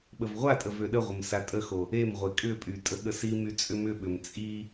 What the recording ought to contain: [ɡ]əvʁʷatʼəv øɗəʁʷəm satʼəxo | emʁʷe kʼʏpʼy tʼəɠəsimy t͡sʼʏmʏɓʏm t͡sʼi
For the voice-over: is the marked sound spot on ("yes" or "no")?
no